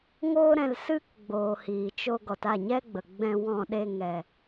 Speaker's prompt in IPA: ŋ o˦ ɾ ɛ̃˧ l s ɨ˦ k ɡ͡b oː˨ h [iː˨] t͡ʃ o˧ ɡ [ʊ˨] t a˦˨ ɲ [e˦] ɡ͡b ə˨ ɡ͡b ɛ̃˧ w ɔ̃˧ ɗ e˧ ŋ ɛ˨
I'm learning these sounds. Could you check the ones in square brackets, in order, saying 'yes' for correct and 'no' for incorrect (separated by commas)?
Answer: yes, no, no